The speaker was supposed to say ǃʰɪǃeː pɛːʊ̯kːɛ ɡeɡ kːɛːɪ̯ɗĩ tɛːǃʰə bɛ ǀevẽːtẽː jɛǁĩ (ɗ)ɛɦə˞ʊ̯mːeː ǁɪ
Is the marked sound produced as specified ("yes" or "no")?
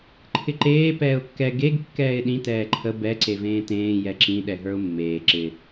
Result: yes